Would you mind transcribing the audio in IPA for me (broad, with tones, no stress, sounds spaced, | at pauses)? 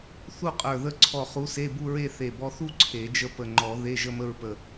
θ u˥˧ qʼ ə˞˧˩ ð ə˧˥ ǀʰ ɔ˧˩ χ u˧˥ s e˧˥˧ b u˥˧ ɹ e˥˧ θ e˧˩ b ɔ˧ θ u˥˧ ǀʰ e˨˩˦ d͡ʒ ə˥˧ p ə˧˩ ŋ͡ǃ ɔ˨˩˦ ð e˧˥˧ ʒ ə˥˧ m ə˥˧ ɹ p ə˧˩